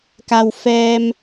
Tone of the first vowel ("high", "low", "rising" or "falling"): low